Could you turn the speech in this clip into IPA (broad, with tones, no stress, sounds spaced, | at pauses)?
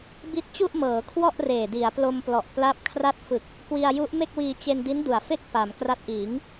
b i˦˥ t̚ t͡ɕ u˥˩ ʔ m ɤː˩˦ kʰ w ɔ˥˩ ʔ r eː˨˩ d i˩˦ a̯ p l o˧ m p l ɔ˨˩ ʔ p l a˦˥ p̚ kʰ r a˥˩ t̚ f ɯ˨˩ k̚ | k w i˧ a̯ j u˦˥ ʔ m e˥˩ k̚ w iː˧ t͡ɕ e˧ n d i˦˥ n d u˨˩ a̯ f e˥˩ k̚ p a˩˦ m k r a˦˥ t̚ ʔ iː˩˦ ŋ